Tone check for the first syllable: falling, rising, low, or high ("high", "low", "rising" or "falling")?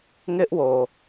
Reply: high